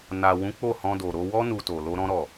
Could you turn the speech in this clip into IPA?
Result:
n a˨ w ũ˨˦ k͡p o˦˨ h ɔ̃˧ d o˨ ɾ o˧ w ɔ˦ n u˧ t o˨ l o˧ ɾ ɔ̃˦ ɾ ɔ˦˨

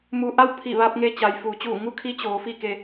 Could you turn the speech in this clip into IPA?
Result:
m u˧ ʔ a˥˨ w pʰ i˧˩ ʋ a˧ p̚ ŋ e˧ t͡ɕ a˩ j f uː˩˧ t͡ɕ uː˧˩ ŋ u˧˥ kʰ i˧˥ t͡ɕ oː˩˧ f i˥˨ k e˧

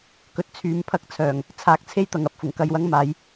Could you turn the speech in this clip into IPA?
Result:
k ɵ˧ t̚ t͡sʰ yː˨˧ m pʰ ɐ˧ k̚ t͡sʰ œː˨˩ ŋ | t͡sʰ aː˨˥ k̚ t͡sʰ e˥ j t̪ ɐ˨ ŋ ɐ˥ p̚ f ʊ˨˩ ŋ k ɐ˧ j w ɐ˥ ŋ m aː˨˥ j

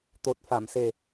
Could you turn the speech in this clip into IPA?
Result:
t̪ o˨˩ t̚ f a˨˩˨ m s e˨˩

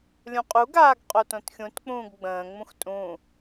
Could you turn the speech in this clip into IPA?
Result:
lʲ ũ qʼ u ɡ aː ɡ qʼ o t õ t xʲ ũ t k͡p ũː ɡ ɡ͡b ə̃ː ŋ͡m ũ x tʼ ũ

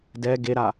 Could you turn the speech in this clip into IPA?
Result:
d ɛ ɡ e ɾ a

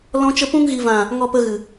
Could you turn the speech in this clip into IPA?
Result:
l ɔ̃˦ t͡ʃ ə˦ p ũ˧ ŋ ɣ i˨ v ã˨ | ŋ ɔ˧ p ə˧ ɣ ɨ˨

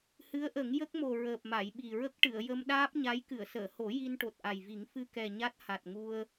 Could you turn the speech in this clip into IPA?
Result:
h ɨ˧˥ ə̯ ʔ ə˨˩˦ ŋ j ə˦˥ k̚ m o˨˩ ɹ əː˨˩ p̚ m a˨˩˨ j ɓ i˨˩ ɹ ə˦˥ k̚ ʈ ɨ˨˩˨ ə̯ j ə˧ m ɗ aː˦˥ p̚ ɲ a˧˥ j k ɨ˨˩˨ ə̯ s əː˨˩˨ h o˨˩˦ j i˧ n ʈ o˨˩ t̚ ʔ a˨˩ j v i˨˩˦ ŋ f ɨ˧ k ɛ˨˩ ɲ a˦˥ t̚ h a˨˩ t̚ ŋ u˧ ə̯

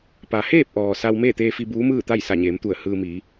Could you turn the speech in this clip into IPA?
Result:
p a˩ h eː˥˨ p̚ ʔ ɔː˩ s a˧ w m eː˥˨ t̪ eː˧ f i˧ b uː˧˥ m ɯː˥˨ t̪ a˥˨ j s a˧˩ ɲ eː˩˧ m t̪ u˧˩ ə̯ h ɯː˧ m i˩˧

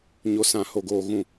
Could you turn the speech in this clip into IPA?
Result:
ɲ o˨ s ã˨ h o˨ ɡ oː˨ ɣ ũ˨

